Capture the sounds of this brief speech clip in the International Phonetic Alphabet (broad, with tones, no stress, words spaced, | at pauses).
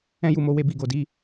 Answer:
ɛ̃˦ju˦˨mo˨˦ we˦bi˧ɡo˧di˦